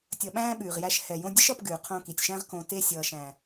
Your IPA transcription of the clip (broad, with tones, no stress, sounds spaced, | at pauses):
tʲ ʌ˨ ɓ æ̃ː˧ ɓ ʉː˨ ʁ j æ˧ ʃ h ɛ˨ j õ˧ dʲ ə˦ ʃ ʌ˧ p ɡ ʉː˨ qʰ õ˧ k i˨ tʲ ʃ æ̃˦ ʁ k õ˧ t e˧ sʲ ʌː˨ ʃ æ̃˨